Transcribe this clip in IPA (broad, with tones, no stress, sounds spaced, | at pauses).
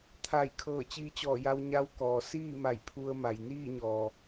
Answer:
t̪ʰ a˧˩ j kʰ ɤː˧˩ t͡ɕ iː˧ t͡ɕ ɔː˧˩ j a˧ w ɲ a˧˥ w k ɔː˩ s iː˥˨ m a˧˩ j pʰ u˧ ə̯ m a˩ j n iː˥˨ ɲ ɔː˩